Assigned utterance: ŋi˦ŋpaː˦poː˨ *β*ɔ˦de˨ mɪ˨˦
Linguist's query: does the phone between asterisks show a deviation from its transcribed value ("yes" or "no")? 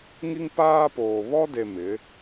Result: no